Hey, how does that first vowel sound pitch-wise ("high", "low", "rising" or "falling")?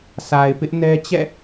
low